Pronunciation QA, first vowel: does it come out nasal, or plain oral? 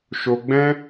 oral